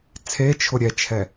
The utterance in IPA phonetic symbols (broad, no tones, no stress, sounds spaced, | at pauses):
t͡sʰ e t͡ʃʰ ʊ ɾʲ ɛ t͡ʃʰ ɛ